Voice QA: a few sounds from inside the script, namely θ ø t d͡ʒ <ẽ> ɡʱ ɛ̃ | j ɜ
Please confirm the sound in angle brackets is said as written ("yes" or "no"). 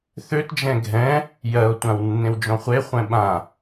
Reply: no